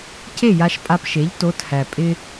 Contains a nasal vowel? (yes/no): no